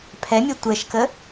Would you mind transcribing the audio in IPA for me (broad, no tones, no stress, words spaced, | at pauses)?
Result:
pʰɛmʲɛ tʷɛʃkə